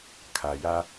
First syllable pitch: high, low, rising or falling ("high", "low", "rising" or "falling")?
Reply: low